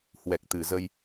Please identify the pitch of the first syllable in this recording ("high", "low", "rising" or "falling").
low